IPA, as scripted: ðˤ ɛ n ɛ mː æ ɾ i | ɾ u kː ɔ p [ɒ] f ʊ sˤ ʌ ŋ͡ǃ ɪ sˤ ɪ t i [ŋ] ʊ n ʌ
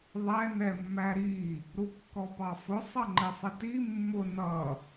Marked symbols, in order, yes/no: no, no

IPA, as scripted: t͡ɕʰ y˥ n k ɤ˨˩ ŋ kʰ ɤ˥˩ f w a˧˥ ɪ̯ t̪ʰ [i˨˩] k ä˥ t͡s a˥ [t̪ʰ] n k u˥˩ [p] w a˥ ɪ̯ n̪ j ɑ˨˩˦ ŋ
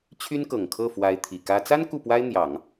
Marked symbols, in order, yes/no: yes, no, yes

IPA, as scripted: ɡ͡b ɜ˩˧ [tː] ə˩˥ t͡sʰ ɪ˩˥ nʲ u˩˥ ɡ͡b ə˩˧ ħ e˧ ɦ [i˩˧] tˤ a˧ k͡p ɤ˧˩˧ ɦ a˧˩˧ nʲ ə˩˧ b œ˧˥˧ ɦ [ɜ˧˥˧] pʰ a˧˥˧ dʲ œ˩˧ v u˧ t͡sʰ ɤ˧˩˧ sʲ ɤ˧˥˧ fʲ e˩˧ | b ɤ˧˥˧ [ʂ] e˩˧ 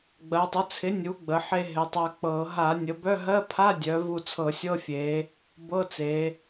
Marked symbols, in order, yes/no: no, no, yes, no

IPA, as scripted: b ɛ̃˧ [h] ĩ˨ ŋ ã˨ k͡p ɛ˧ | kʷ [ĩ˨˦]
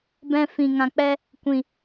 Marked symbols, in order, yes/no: no, no

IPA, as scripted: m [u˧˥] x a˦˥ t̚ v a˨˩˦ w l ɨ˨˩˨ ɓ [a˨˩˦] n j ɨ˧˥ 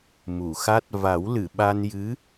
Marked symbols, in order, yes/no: no, no

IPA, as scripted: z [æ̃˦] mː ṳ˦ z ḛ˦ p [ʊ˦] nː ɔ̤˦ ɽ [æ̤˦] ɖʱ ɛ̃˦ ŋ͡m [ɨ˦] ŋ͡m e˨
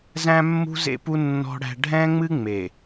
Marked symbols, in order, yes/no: yes, no, yes, yes

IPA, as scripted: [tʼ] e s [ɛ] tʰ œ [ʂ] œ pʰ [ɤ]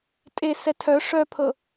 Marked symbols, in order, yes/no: yes, yes, yes, yes

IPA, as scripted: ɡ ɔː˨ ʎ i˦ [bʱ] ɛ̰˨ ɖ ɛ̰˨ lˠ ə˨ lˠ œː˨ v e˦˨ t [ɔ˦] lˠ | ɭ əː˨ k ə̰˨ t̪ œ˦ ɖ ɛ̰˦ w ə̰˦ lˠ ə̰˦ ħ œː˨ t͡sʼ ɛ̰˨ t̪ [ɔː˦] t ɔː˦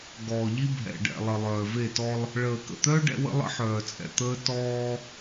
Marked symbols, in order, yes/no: yes, yes, no

